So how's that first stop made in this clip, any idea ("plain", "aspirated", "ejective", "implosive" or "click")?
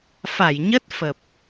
plain